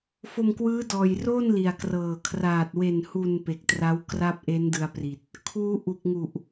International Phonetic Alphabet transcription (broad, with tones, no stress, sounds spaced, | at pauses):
f o˧ m k w ɯː˦˥ d ɔː˨˩ j r oː˥˩ n l i˨˩ a̯ k r ɤː˨˩ kʰ r aː˨˩ t̚ w e˨˩ n h u˨˩ n p e˨˩ k̚ t r a˦˥ w k r a˥˩ p̚ ʔ e˦˥ n d ɯ˧ a̯ p r i˨˩ t̚ | kʰ uː˦˥ ʔ u˨˩ k̚ ŋ u˨˩ ʔ